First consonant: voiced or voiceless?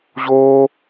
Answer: voiced